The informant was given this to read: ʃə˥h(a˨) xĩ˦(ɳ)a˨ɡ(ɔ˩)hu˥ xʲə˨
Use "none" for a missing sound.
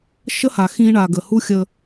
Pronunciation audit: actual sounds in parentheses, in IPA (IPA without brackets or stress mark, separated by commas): a˨, ɳ, ə˩